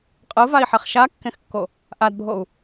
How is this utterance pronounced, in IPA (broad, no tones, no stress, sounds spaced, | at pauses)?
qʼ ɯ v a i̯ ħ ɛ χ ʃ a kː ẽ x kː o | ʔ a d bʱ o u̯